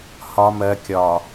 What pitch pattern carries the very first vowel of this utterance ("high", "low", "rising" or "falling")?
low